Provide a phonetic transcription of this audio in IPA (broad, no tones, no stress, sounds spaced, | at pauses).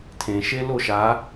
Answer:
tʰ ẽ ʃ e l o ʃ a